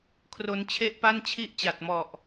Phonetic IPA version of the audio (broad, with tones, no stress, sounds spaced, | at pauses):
kʰ r o˧ n t͡ɕʰ e˥˩ ʔ p a˥˩ n t͡ɕʰ i˥˩ ʔ t͡ɕ a˨˩ t̚ m ɔ˨˩ ʔ